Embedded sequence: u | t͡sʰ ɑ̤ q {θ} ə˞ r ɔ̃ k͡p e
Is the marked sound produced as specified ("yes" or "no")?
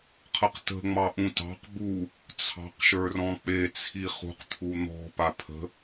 no